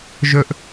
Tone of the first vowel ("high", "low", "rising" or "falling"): high